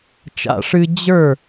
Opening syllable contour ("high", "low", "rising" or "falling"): high